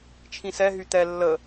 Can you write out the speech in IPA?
t͡ʃʰ ĩ s ɛ ɦ y t̪ ɛ lː ə

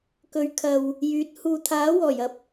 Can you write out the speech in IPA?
k ɵ˨˧ ɥ kʰ ɐ˨ w | j yː˨˥ t̚ h uː˨ t̪ʰ aː˨˥ w ɔː˨˩ j ɐ˧ p̚

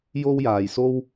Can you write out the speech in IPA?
j o˥ w j aː˨ j s o˥ w

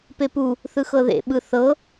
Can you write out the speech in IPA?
p e p u | θ ɯ x ɤ ð ḛ ɓ ɯ θ ɤ

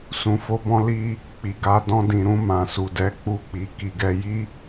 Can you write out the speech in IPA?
s ũ˧ f o˦ b ɔ̃˦ l i˦ | k͡p i˨ ɡ a˧ d ɔ̃˧ d ĩ˨ ɾ ũ˧ m ã˨ s u˨ d ɛ˨˦ k͡p u˧ k͡p i˨ k i˨ ɡ ɛ˧ j i˦

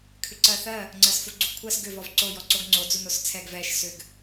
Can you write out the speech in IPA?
kʰ ʏ ǀ ɜ θ ɜ | ŋ͡ǀ ɜ s f u ɡ͡ǀ u ɡ kʷʰ ɜ s ɡ ʏ v ɔ v ǀ o j ɔ ǀ o ɡ ŋ͡ǀ o d͡z u n o s t͡sʰ ɛ ɡ v ɛ ʃ s ʏ ɡ

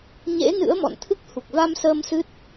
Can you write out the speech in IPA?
ɲ ḛ˧˥ n ɨ̰˧˥ ə̯ m ɔ̰˧˨ n t̪ʰ ɨ˦˥ k̚ h u˨˩ k̚ v a˧ m s əː˧ m s ɨ˦˥ t̚

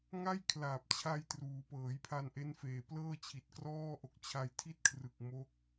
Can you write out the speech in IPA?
ŋ a˥˩ j kʰ l aː˨˩ p̚ t͡ɕʰ a˧ j t r uː˩˦ p ɤː˩˦ j pʰ a˧ n ʔ e˦˥ n f eː˨˩ p l ɤː˥˩ t͡ɕʰ i˨˩ t̚ k r ɔː˥˩ ʔ o˨˩ k̚ t͡ɕʰ a˧ j tʰ i˥˩ t̚ kʰ r ɯ˨˩ k̚ m o˦˥ k̚

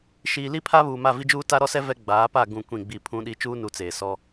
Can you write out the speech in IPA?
ʃ iː˨ l i˦ pʰ a˦ β uː˨ m a˦˨ v i˦ d͡ʒ uː˦ t a˦ ɾ ɔ˦ s ɛ˦ v ɛ˦ ɡ͡b aː˨˦ p a˦˨ ɡ ũ˦˨ kʷ ĩ˦˨ ɡ͡b i˦˨ pʰ ũ˦ ɗ i˦ t͡ʃ uː˦ n u˨˦ t͡s eː˨ s ɔ˦

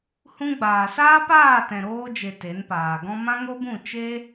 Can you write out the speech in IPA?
h ũ˧ ɡ͡b aː˨ s aː˦ p aː˦˨ t ɛ̃˨ ɾ oː˧ d͡ʒ e˨ t e˨˦ n p aː˨ ɡ ɔ̃˦ m ã˦ ŋ o˦ b ũ˦˨ t͡ʃ e˦

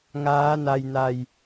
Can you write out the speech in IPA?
ŋ aː˦˥ n a˧ j n a˧ j

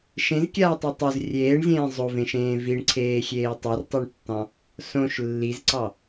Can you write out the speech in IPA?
ʃ ẽ z kʲ aː tˤ o tˤ o z rʲ eː ɳ zʲ ẽː zˤ o v ẽ ʃ ẽː v i ɳ ǀʰ eː xʲ eː tˤ i r tˤ o ɳ tː ɑ̃ | s õ ʃ lː i z ǀ ɑ

